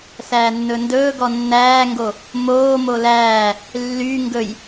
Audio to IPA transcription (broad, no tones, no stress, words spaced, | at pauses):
sæːnːɵndɵː ɡɔnːæːŋɡo | moː molæː | lːy ŋɡɵj